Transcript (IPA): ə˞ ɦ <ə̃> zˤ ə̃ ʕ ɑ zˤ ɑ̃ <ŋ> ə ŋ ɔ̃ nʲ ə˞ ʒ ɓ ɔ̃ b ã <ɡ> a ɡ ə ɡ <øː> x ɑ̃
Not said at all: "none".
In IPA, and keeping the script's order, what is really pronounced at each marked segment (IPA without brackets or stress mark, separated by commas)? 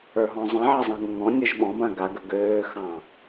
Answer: ɔ̃, ŋ, ɡ, øː